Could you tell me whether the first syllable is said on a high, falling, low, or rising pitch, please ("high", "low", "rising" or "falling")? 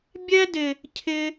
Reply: high